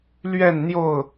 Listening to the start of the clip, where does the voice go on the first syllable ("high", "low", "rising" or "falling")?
falling